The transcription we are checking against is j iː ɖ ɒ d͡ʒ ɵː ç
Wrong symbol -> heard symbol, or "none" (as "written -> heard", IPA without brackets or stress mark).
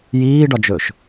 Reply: ç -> ʃ